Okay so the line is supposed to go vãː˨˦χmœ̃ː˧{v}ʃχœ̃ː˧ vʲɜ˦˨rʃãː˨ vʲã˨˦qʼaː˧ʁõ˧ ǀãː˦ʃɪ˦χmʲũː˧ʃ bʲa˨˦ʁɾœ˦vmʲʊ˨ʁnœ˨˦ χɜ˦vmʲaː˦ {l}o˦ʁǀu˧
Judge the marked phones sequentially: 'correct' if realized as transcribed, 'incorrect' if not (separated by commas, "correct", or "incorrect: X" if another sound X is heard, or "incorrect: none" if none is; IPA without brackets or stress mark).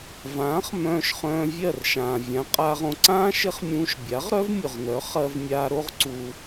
incorrect: none, incorrect: ɾ